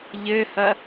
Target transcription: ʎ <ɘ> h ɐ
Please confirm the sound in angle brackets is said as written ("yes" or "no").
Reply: yes